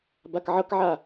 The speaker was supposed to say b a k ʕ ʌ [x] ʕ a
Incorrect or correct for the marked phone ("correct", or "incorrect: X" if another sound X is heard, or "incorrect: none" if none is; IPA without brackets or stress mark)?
incorrect: k